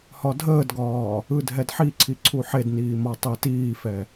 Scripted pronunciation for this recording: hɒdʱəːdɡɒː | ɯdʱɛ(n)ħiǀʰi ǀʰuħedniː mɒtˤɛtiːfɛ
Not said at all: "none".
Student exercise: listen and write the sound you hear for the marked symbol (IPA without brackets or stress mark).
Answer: d